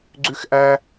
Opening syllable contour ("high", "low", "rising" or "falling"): high